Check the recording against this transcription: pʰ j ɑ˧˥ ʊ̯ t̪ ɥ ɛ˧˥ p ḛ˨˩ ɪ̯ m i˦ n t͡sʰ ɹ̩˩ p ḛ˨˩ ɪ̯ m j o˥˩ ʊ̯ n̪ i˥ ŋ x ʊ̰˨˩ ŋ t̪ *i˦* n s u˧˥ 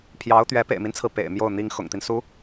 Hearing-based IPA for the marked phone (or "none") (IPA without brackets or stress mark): i˦